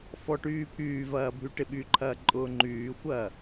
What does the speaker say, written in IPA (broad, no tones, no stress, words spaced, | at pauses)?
fɔʈyːpʰyːvɐː bʱyʈɪɓyǃʰɐː ǃʼʊːŋ͡ǃyːxʷɐː